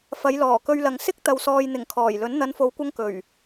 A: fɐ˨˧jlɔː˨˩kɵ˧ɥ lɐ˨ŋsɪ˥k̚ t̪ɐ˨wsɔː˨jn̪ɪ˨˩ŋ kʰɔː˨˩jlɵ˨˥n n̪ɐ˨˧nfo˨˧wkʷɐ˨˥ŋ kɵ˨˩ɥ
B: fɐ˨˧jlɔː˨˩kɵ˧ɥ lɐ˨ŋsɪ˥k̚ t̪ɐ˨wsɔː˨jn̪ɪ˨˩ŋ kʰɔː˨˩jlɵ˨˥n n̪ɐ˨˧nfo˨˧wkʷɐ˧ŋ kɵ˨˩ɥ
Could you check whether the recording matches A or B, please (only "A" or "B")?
B